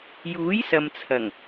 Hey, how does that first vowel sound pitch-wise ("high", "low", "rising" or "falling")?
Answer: rising